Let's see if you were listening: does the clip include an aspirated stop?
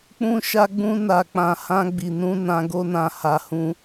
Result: no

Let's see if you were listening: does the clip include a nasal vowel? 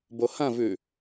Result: yes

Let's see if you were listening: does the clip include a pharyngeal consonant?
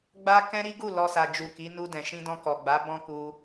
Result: no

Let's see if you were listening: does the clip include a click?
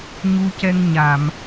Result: no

